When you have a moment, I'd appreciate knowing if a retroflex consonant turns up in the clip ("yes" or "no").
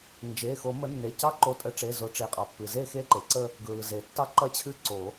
yes